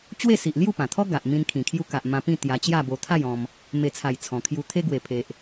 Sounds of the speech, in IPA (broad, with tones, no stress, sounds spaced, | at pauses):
t͡ɕ w e˥˧ s i˨ ʔ l j u˥˧ p ã˨˩ t̪ʰ ɔ˦ ɡ a˨ ʔ m ĩ˧ n kʰ ĩ˨˩ kʰ j u˧ k a˨ ʔ m ã˧ p ĩ˥˧ t̪ j a˧ t͡ɕ j a˥˧ b o˧ t̪ʰ a˥˧ j ɔ̃˧ m | m e˨˩ t͡sʰ a˨˩ j t͡sʰ ɔ̃˨˩ kʰ j u˧ t̪ʰ e˧ ɡ w e˨˩ pʰ e˨ ʔ